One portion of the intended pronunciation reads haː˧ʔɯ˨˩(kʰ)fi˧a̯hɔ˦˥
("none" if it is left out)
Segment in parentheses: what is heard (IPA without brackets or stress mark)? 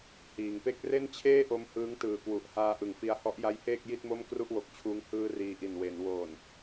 ŋ